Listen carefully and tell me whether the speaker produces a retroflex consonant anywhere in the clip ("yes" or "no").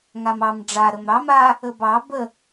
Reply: yes